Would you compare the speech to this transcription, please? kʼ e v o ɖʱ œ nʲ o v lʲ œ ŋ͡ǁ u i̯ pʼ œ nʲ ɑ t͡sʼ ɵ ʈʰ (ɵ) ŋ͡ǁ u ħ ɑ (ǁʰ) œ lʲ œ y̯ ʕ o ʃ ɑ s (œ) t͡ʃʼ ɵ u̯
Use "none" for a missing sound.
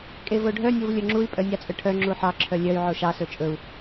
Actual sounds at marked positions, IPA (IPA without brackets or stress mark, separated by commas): œ, ǁʰ, ɵ